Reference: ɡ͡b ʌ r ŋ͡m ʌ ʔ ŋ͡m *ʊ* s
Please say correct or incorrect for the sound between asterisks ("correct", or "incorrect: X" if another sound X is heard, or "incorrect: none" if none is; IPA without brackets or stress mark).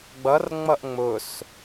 correct